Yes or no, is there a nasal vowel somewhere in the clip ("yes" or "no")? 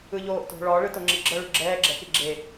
no